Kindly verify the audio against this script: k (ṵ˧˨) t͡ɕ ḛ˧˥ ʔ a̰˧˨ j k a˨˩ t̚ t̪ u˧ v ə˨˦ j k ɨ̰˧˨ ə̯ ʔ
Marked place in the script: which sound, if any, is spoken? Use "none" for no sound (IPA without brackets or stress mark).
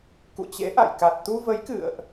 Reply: ṵ˧˨